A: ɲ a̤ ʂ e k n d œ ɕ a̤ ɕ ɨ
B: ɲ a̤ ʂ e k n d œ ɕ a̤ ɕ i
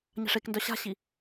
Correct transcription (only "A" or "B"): B